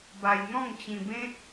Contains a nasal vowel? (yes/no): yes